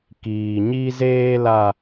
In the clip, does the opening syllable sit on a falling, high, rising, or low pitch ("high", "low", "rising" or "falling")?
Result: low